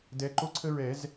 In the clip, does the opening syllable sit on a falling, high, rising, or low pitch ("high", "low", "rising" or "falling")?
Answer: rising